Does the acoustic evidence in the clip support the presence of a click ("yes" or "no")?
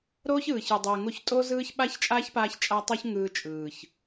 no